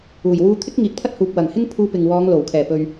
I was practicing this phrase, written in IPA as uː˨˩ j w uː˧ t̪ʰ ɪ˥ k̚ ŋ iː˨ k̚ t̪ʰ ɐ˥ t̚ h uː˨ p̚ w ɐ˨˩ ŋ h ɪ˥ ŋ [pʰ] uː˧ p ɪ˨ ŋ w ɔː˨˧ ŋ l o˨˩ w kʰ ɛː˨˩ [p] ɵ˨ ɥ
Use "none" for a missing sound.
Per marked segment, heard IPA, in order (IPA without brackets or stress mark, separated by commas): pʰ, p